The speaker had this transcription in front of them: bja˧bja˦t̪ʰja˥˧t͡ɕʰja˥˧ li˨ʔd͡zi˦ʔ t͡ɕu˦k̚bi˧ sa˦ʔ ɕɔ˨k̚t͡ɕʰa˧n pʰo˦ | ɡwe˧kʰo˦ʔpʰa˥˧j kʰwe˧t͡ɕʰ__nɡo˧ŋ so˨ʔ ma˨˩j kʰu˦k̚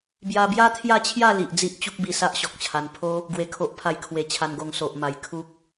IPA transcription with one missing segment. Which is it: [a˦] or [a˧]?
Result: a˧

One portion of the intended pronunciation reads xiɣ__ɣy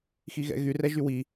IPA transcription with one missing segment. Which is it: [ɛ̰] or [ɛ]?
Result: ɛ̰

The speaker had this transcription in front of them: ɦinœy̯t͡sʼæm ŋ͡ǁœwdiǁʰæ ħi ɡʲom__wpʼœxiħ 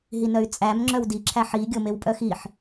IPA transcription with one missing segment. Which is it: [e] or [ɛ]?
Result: e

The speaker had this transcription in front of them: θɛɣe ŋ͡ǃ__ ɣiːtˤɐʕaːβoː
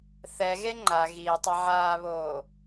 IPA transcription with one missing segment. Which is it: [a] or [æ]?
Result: a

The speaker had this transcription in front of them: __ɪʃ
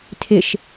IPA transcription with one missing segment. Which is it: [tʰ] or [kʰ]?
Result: tʰ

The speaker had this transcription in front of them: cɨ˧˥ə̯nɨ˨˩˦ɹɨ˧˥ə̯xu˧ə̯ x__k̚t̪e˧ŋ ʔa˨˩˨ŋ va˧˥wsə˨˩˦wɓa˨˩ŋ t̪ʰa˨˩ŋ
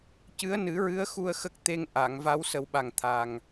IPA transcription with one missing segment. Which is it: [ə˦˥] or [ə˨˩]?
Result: ə˦˥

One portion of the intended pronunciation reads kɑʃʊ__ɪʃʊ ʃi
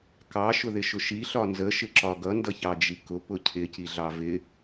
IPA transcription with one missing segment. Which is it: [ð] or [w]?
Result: ð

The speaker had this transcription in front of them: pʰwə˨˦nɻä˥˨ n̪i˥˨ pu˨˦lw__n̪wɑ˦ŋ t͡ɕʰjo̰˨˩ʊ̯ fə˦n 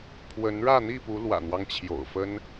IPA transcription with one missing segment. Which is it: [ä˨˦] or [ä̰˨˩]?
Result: ä̰˨˩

